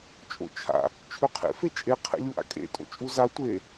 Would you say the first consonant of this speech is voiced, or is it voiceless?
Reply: voiceless